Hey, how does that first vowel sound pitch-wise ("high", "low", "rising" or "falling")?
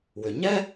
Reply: low